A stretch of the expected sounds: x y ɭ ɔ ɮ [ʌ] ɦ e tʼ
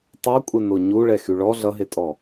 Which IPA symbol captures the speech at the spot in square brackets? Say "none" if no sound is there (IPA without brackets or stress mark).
ʌ